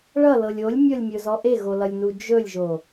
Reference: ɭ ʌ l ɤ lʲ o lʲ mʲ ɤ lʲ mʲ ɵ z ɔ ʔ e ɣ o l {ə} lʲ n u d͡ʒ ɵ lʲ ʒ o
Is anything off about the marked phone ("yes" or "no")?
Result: yes